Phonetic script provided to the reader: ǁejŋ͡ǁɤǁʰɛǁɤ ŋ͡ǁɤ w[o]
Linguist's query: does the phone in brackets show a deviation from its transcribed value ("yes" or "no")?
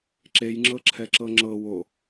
no